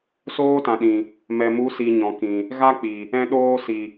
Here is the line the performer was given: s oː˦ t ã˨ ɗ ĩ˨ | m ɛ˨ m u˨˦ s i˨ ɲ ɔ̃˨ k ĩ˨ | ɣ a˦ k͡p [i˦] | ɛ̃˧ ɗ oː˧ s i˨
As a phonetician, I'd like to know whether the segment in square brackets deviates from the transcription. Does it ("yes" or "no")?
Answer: yes